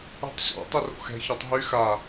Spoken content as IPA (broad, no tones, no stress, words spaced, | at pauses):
ṳtˤɕɔ̰ tˤiro̰xɛ̤ çɔtˤɦy xa